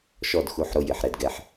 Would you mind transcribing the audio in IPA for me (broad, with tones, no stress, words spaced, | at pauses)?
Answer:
ʃɔ˦˨dxu˨˦ħɾo˧ jɪ˨ħ ɾɛ˧dɡɛ˧ħ